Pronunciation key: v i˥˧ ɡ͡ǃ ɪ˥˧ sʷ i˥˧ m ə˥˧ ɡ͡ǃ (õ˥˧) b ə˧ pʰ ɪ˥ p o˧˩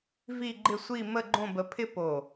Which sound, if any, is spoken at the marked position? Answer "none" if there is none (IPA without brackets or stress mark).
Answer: õ˥˧